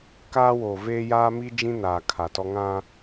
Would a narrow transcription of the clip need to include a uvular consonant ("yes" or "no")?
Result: no